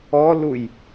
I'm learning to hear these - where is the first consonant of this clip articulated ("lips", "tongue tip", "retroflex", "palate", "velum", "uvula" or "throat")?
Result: tongue tip